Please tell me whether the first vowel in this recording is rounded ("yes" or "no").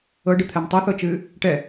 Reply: no